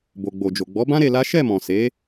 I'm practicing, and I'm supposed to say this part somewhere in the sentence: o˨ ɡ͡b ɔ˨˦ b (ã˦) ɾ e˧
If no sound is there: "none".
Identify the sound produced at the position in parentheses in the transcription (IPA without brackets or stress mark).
ã˦